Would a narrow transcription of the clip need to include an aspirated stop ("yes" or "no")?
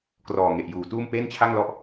yes